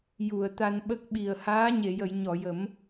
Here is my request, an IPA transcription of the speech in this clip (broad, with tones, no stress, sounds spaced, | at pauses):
j u˨˩˨ ə̯ t̪ a˧ n ɓ ə˦˥ k̚ ɓ i˨˩ ə̯ h aː˧˥ ɲ e˨˩˨ j ə˨˩˨ j ɲ ɔ˨˩˨ j ə˨˩˦ m